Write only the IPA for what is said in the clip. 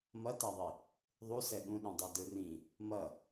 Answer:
m ʌ t a ðˤ i | ðˤ u s ɛ ɠ ũ ɗ ũ dˤ ɛ d ɯ r ĩ | m ʌ

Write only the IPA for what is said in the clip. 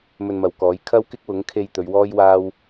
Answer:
m ɵ˧ n m ɐ˨ w k ɔː˨˥ j kʰ ɐ˥ w k ɪ˥ k̚ w ʊ˨˥ ŋ kʰ e˧ j t̪ ɵ˨˧ ɥ w ɔː˥ j w aː˥ w

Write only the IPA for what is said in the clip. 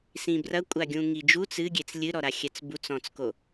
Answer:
s ĩ b r ɐ kʷʼ a ɡʲ ũ ŋ i d͡ʒ u t͡s ɨ ɡʲ e t͡s lʲ ɨ ɾ ɔ ɾ a xʲ ɛ t͡s b u t͡s ɔ̃ t͡s k o

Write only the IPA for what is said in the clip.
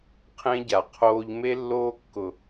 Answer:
qʰ ẽ˦ ɟ a˨ qʰ oː˦ ʎ m e˦ lː oː˦ kː ʊ˨

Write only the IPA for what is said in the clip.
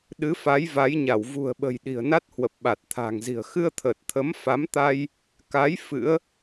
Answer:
ɗ ɨ˨˦ f a˨˦ j v a˨˦ j ɲ a˧˩ w v ṳ˨˩ ə̯ ɓ ə̤˨˩ j ɗ i̤˨˩ ə̯ n a˦˥ t̚ h w ə˨˩ p̚ ɓ a˨˩ t̚ t̪ʰ a̤ː˨˩ ŋ z i̤˨˩ ə̯ x ɨ˧ ə̯ t̪ʰ əː˨˩ t̚ t̪ʰ ə˨˦ m f a˨˦ m t̪ a˧ j | k a˨˦ j f ɨ̰˧˥ ə̯

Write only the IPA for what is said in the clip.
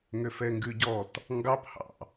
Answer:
ŋ ø f ɛ ŋ ɡ ʉ ɟ ɔ t | ŋ ɡ ɑ p h ɑ̰

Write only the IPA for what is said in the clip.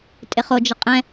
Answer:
tʼ ɪ χ o d͡ʒ ə qʼ ɛ̃

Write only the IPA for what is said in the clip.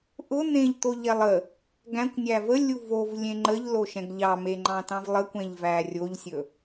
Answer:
ʔ ʊ n̪ ẽ ʎ t̪ o ʎ ɛ lˠ ə | ɡ æ̃ kʷ nʲ æ v ə lʲ u v o v lʲ ẽ ŋ͡ǃ ə ʎ l o ʃ ɛ̃ ɡ ʎ ɑ m e ŋ͡ǃ ɑ̃ t ɑ̃ v lˠ ə kʷ ɛ̃ ʎ v æ rʲ o ʎ sʲ ɵ

